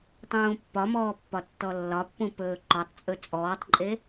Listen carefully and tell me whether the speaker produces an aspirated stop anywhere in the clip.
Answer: no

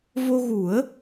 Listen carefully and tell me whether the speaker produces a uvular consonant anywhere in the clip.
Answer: no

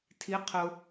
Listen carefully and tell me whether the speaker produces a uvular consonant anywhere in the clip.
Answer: yes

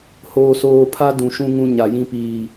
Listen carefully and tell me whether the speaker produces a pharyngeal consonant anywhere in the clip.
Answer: no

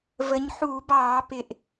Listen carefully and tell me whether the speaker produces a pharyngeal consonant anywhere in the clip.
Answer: yes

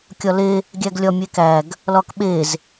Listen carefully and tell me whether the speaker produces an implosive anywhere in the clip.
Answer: yes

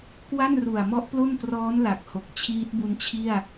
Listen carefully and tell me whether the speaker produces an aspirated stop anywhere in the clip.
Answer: yes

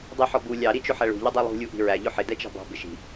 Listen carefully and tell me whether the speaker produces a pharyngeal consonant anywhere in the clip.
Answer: yes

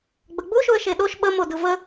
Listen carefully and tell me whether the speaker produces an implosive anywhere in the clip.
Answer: yes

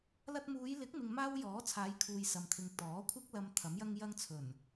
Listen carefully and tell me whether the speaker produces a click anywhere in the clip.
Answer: no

